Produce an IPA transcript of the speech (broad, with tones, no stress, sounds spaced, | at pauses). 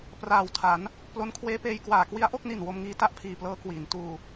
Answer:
p r aː˨˩ w tʰ a˩˦ n | p l o˦˥ n kʰ w eː˦˥ p eː˧ j k w aː˨˩ k w i˦˥ a̯ ʔ o˥˩ k̚ n i˨˩ n w o˧ m ŋ iː˧ t a˥˩ ʔ pʰ iː˨˩ p l ɤː˦˥ k w iː˩˦ n t uː˧